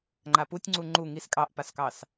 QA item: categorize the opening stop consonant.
click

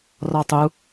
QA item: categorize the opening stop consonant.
plain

